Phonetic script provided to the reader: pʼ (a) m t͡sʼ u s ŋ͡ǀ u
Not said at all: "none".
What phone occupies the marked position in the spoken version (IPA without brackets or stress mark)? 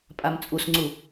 a